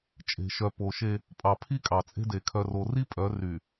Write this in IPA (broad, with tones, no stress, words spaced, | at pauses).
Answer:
t͡ʃʼe̤˨ʃœ˨po˨ʃe˦ | pʼɑ˨ pʰi˦kʼɑ˨t͡sʼe̤˦de˨ kʰœ˨ro˨ri˦ pʼœ˨˦ ry˨